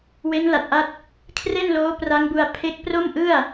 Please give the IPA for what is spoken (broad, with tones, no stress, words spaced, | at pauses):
we˦˥nla˨˩t̚ʔa˦˥t̚ | kʰre˥˩nloː˦˥ pra˦˥ŋbu˧a̯ pʰe˦˥k̚ pro˥˩mʔɯ˥˩a̯